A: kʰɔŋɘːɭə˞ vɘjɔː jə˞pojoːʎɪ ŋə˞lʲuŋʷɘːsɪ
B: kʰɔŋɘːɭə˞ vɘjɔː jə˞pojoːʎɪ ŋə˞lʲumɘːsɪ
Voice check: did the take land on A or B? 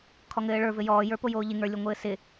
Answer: A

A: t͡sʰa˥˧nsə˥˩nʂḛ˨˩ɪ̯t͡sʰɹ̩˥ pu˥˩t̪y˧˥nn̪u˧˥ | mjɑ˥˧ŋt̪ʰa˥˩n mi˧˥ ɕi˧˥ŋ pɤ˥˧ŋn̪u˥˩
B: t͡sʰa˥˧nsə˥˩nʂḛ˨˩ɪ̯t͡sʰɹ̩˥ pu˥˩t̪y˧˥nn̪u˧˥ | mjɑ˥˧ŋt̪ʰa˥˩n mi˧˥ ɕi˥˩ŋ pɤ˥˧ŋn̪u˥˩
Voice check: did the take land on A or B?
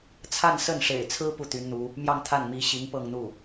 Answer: A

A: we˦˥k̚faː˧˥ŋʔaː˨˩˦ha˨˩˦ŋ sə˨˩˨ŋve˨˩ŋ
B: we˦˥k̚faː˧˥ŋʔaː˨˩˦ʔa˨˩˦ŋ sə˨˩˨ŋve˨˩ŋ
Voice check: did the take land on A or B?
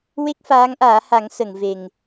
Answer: A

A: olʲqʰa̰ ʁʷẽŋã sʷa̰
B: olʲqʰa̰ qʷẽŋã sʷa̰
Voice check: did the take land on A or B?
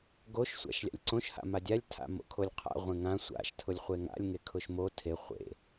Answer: A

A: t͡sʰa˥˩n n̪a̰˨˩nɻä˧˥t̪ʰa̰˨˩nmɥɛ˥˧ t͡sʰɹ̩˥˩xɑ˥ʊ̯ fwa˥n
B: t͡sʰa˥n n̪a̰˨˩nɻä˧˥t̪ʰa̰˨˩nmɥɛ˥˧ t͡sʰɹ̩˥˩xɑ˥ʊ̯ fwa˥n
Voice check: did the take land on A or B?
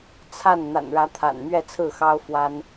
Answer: A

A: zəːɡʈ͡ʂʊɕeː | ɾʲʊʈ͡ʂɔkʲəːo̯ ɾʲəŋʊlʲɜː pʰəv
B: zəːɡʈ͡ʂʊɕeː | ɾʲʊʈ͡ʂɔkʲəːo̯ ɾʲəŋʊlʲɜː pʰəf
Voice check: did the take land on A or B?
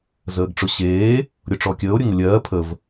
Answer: A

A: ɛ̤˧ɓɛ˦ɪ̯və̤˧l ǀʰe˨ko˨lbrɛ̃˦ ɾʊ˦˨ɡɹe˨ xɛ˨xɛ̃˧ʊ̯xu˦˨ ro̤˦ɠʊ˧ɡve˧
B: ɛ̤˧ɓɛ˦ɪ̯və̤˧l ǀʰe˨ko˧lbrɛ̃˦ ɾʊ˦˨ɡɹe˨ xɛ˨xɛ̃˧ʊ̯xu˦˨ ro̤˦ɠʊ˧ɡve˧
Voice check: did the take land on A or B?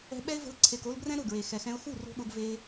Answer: B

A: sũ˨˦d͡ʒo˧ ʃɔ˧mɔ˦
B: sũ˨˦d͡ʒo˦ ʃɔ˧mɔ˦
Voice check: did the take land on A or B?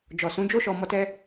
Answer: B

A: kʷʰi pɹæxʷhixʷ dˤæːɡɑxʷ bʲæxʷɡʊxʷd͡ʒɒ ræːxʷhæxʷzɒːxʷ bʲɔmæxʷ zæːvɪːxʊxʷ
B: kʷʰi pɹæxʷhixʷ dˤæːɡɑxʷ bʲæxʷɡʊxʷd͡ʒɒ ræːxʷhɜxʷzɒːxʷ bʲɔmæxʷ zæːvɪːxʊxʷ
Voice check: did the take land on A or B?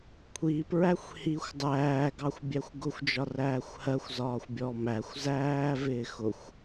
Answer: B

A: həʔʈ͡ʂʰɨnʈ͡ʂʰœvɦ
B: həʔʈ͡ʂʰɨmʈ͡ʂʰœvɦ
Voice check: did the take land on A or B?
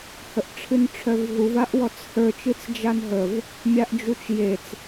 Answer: A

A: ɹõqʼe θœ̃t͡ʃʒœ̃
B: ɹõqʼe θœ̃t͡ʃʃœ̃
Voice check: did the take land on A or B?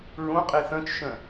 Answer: B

